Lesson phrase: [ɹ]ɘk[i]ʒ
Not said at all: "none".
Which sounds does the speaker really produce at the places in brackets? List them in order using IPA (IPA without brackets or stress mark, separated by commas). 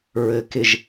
ɹ, ɪ